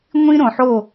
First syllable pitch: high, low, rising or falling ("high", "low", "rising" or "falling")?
high